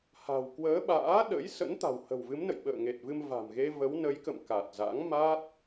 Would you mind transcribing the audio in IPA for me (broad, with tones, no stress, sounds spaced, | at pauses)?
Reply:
h a̤˨˩ w k w əː˨˦ ɓ a̰ː˧˥ ɗ ə̰˧˥ j s ə̰˧˥ n t̪ a̤˨˩ w h ə̤˨˩ w v ɨ˨˦ m n ə̰˧˨ j ɓ ə̰ː˧˨ ŋ e˨˩ t̚ v ɨ˧ m v a̤˨˩ m ɣ e˧ v ə˨˦ w n ə˨˦ j k ə̰˧˨ m k a˨˩ t̚ z a̰˧˥ ŋ m a˦˥ t̚